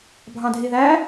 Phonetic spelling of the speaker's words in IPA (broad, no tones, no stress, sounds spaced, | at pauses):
bʱ ɑ̃ dʱ i ð æ